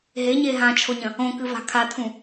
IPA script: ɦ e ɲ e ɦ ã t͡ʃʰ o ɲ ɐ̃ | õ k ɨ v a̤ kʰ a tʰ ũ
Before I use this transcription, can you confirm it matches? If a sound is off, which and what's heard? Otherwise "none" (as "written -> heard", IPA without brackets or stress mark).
none